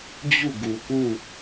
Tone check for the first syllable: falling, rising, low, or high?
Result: falling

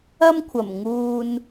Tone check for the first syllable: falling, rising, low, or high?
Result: high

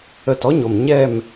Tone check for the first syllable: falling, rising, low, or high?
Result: falling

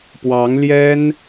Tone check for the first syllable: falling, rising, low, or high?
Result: rising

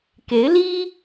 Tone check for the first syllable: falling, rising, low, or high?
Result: rising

